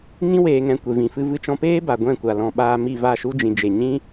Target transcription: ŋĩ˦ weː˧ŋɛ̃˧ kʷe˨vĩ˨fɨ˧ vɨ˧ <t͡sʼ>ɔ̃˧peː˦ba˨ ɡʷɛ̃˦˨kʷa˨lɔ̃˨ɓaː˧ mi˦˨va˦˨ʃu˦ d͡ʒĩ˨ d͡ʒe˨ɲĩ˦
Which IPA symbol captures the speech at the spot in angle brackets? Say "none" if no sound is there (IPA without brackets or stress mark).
t͡ʃ